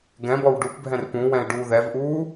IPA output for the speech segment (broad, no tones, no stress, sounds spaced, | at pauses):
ɡ ɛ̃ b ɔ w ɖ u p bʱ ɛ̃ r p ũ w ɛ̃ ɪ̯ ɖ uː ð ɛ v ʔ uː